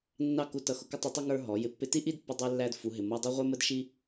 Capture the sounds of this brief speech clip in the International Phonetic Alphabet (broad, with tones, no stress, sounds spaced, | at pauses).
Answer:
nː ɑ˦˨ k u˧ t ʌ˧ x ʊ˧ k ɪ˦ tˤ u˧ tˤ ʌ˦ ŋ ə˞˦ ɦ ɔ˨˦ j ɪ˧ pː ɪ˧ t i˦ ʔ i˦ d pː ʊ˧ dˤ ɛ˦ lː æ˦ d f u˨˦ ɦ ɪ˨ m ʌ˧ dˤ ɑ˦ ʁʷ ɛ˦ m ə˦ d ʃ i˦